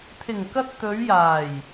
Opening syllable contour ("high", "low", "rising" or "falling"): low